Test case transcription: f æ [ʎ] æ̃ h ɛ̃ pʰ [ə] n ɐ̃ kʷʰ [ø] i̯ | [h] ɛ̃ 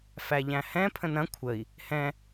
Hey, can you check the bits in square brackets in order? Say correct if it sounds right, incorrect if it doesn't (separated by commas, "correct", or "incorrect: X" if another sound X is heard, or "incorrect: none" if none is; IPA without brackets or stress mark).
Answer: correct, incorrect: ə̃, incorrect: ə, correct